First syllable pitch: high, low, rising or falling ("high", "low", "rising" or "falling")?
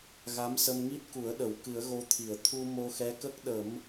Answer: rising